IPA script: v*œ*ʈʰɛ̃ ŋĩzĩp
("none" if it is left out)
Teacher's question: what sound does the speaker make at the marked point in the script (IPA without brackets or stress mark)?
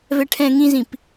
ɛ